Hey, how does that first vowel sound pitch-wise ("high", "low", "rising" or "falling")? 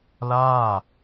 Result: falling